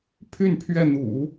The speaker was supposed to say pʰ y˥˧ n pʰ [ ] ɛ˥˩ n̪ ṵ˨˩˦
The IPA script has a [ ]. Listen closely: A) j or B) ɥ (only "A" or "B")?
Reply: B